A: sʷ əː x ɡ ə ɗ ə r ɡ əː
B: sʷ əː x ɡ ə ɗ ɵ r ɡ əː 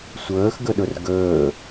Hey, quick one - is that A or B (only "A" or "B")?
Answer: B